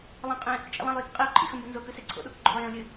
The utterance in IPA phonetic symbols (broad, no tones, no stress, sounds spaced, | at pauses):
lˠ ɐ̃ qʼ ẽ | t͡ʃʼ ḛ lˠ ɐ̃ lˠ j i k qʼ i ʊ̯ ǃʼ ḭ x ɵ m b ɵ n z o k ʉ s e ǀʰ o̰ ɗ o k ɡ͡ǃ o̰ lˠ j ẽ ʊ̯ lʲ ɨ